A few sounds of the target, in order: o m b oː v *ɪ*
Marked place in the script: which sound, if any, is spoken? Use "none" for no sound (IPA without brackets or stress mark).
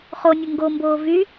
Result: y